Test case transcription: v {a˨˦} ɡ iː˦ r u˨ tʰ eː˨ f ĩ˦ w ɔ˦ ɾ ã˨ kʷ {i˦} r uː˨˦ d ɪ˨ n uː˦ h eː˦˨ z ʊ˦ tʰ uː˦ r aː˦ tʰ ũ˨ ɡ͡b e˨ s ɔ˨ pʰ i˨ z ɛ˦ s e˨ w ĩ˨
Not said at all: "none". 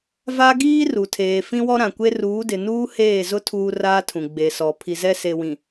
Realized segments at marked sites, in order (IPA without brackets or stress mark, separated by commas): a˦, e˦